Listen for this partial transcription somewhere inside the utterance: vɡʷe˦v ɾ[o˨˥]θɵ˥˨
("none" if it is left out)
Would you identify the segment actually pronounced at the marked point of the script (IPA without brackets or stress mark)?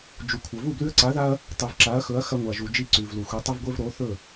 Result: o˨˥